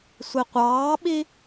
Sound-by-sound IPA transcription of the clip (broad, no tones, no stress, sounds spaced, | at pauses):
sʷ i qʷ ɑː ɓ i